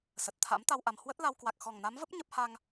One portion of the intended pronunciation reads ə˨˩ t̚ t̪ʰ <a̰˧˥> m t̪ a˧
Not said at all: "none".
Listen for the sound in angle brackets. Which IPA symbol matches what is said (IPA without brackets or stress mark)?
a̰˧˥